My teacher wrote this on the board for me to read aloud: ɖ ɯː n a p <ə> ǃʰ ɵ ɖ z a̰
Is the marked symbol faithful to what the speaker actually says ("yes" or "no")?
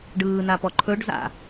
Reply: no